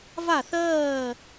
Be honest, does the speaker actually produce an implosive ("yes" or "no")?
no